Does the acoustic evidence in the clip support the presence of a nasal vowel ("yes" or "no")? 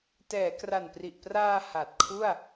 no